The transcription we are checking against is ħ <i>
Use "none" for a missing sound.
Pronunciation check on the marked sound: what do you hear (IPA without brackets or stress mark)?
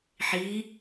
i